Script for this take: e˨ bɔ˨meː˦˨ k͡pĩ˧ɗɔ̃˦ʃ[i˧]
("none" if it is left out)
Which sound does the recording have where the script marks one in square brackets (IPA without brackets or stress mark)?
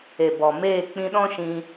ĩ˧